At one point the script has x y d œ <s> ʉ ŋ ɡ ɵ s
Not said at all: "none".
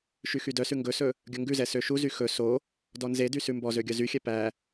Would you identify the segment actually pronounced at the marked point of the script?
s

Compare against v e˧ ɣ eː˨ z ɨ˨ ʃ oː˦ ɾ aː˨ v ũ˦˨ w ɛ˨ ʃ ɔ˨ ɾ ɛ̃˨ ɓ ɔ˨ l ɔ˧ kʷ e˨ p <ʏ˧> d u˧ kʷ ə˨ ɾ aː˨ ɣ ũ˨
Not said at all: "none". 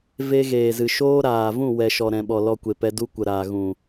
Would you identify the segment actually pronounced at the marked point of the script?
ɛ˧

